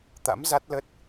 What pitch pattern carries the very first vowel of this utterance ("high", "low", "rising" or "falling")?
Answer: rising